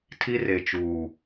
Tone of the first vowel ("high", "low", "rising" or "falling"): high